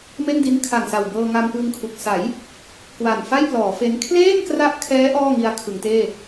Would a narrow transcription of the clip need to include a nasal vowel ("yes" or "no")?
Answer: no